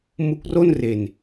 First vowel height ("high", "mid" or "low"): high